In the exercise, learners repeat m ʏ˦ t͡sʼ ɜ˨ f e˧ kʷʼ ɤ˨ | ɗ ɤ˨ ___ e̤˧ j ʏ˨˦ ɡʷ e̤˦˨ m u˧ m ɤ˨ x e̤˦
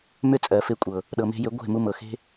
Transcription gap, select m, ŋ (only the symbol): m